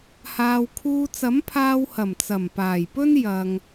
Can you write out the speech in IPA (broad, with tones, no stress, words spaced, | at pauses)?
haː˨wkʰuː˧ t͡sɐ˨˥mpʰaː˧whɐ˨˩m t͡sɐ˨˩mpaː˨˩jpɵ˥n jɐ˧ŋ